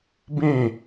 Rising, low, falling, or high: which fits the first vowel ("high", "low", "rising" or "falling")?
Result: falling